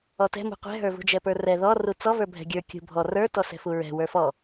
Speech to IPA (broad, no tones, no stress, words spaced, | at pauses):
ɔtɛ̤mṳ qʷɛ̤ɦə˞vṳ d͡ʒɛpə˞rɛ ðɔru t͡sɔvə˞ bʱɛ̤ɡʲə˞ kʲṳ bʱɔ rə˞ tɔsɛ̤fuɹɛ̤ wə˞fɔ